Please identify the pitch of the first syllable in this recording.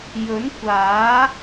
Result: rising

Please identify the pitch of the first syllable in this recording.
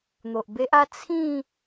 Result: low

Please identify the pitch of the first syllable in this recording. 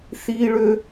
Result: high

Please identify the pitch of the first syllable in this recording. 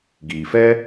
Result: low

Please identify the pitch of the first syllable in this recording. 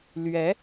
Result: rising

